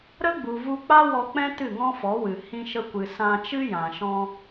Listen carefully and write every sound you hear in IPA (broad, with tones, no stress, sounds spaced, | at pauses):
ɾ ə˦ ɡ͡b u˨ v u˧ k͡p a˦ w ɔ˧ k͡p ɛ̃˦ t ɨ˦˨ ŋ ɔ̃˦ f ɔ˨˦ w ɨ˨ h ĩ˧ ʃ ə˧ kʷ ɨ˨ s ã˧ t͡ʃ ɨ˦ j ã˨ ʃ ɔ̃˧